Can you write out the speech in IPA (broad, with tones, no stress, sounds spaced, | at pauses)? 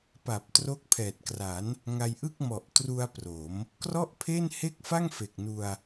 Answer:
p a˨˩ p̚ t r o˦˥ k̚ pʰ ɛː˨˩ t̚ k r a˩˦ n | ŋ a˧ j ʔ ɯ˥˩ k̚ m ɔ˨˩ ʔ t r u˧ a̯ p r o˩˦ m | k r ɔ˥˩ ʔ pʰ e˥˩ n h e˥˩ k̚ f a˥˩ ŋ f e˨˩ k̚ n u˧ a̯